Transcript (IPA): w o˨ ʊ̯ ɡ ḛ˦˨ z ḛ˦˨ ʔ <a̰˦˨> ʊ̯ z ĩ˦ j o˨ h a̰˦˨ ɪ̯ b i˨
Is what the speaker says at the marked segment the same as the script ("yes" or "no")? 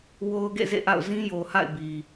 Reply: yes